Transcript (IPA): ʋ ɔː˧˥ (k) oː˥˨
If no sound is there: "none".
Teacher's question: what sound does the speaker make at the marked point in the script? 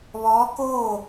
k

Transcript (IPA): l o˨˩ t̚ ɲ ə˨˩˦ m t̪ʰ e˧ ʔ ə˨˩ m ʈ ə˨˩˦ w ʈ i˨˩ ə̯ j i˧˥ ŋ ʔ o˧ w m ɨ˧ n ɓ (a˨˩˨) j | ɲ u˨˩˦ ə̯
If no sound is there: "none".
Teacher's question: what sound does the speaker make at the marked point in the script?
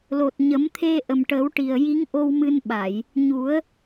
a˨˩˨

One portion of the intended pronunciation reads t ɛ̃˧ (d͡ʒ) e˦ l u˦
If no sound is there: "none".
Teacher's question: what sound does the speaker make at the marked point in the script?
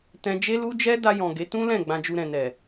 d͡ʒ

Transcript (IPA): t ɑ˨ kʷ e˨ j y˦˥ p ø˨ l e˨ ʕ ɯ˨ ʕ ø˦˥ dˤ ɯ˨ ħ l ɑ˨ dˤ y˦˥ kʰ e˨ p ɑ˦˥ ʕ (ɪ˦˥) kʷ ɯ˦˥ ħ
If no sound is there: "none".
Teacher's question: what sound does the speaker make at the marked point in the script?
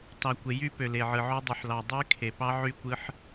y˦˥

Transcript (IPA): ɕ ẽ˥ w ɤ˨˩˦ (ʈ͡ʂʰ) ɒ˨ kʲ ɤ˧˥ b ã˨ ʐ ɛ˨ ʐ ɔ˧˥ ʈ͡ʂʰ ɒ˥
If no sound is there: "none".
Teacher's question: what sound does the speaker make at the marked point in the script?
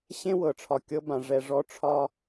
ʈ͡ʂʰ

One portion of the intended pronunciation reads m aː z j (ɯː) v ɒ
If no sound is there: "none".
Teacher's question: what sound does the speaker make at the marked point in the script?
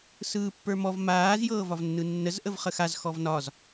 ɤː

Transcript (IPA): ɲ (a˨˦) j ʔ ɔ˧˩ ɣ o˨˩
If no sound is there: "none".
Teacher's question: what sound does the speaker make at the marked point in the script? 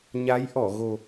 a˨˦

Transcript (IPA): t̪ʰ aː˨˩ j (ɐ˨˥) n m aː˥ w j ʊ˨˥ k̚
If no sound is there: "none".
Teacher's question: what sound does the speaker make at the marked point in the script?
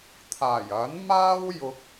ɐ˨˥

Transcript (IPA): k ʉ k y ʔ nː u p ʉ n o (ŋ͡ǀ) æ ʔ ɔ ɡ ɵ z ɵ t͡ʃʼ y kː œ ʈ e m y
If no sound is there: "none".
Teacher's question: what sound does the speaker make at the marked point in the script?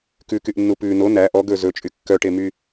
n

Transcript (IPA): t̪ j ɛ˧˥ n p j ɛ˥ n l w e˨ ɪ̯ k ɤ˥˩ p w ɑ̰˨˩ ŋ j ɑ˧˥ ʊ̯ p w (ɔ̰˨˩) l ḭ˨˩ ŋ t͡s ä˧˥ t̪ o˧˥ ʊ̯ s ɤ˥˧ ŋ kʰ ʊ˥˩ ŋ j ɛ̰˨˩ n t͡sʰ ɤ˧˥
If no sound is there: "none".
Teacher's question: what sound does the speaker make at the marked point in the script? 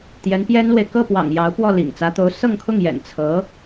ɔ˥˩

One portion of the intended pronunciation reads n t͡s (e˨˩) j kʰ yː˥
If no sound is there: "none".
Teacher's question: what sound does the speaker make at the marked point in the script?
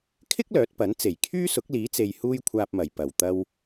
e˨˩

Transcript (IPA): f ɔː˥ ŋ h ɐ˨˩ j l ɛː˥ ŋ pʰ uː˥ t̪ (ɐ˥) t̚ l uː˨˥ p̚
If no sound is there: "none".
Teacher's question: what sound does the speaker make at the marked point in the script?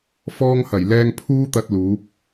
ɐ˧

